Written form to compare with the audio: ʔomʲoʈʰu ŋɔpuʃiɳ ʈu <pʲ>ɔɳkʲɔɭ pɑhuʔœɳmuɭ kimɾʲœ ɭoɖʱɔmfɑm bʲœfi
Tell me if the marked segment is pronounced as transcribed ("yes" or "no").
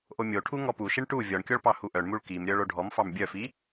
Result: no